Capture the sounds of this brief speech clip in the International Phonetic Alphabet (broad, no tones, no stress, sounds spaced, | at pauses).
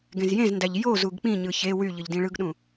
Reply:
ɡ ẽ z j ẽ z n d æ ʎ j o z u ɡ k͡p ĩ ɲ ɯ ç e w y ʎ ɯ ʎ d ĩ ɭ ɯ ɡ ɗ ũ